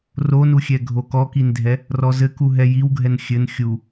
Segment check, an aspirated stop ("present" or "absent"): absent